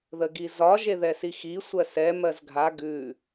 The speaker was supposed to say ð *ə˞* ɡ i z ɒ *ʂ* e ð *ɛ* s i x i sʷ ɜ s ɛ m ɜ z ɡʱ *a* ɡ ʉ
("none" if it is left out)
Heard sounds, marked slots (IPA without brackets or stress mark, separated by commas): ə, ʒ, ɛ, a